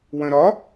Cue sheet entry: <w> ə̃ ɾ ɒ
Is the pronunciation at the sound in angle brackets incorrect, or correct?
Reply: correct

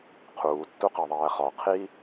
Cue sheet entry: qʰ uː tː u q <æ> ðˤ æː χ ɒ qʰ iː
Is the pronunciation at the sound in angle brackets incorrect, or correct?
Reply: correct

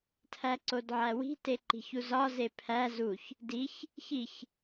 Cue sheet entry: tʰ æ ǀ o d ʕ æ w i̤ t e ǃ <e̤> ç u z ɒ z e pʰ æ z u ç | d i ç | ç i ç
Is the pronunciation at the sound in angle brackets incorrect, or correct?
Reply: incorrect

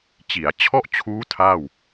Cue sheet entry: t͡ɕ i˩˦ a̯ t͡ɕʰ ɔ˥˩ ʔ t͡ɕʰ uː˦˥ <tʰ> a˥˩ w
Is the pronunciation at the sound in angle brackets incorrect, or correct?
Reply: correct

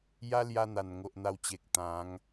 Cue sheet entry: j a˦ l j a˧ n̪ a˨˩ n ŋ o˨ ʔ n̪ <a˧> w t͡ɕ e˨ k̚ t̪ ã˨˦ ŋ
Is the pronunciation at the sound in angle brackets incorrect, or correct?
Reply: correct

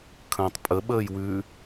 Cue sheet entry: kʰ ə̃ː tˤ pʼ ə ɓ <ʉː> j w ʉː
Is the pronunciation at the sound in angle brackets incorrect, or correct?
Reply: incorrect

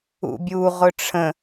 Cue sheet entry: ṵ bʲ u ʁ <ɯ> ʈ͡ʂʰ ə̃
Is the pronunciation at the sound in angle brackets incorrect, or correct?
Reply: incorrect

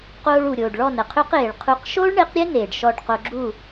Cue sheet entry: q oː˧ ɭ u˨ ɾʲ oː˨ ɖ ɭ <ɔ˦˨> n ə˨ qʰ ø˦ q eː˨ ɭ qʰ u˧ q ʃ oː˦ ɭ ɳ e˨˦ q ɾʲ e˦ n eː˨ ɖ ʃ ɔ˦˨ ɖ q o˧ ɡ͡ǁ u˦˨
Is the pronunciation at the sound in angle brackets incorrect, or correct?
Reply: correct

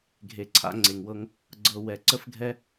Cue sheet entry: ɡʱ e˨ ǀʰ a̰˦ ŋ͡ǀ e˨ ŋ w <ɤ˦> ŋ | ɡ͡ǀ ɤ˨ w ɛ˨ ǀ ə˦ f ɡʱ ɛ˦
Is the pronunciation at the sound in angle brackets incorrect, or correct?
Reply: correct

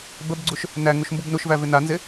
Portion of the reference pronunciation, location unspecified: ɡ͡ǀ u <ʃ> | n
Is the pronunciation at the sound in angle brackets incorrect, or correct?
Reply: correct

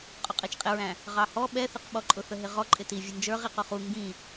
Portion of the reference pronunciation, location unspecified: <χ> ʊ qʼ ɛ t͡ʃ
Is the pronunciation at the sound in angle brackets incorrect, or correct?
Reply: incorrect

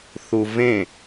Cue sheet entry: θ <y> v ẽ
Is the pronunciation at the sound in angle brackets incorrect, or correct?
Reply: incorrect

